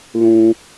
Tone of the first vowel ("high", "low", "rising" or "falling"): high